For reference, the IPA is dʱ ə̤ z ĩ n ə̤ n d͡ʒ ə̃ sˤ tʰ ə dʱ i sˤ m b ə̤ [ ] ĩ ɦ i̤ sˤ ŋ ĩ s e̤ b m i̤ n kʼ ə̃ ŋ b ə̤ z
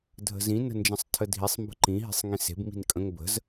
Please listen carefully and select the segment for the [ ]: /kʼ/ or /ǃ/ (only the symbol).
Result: ǃ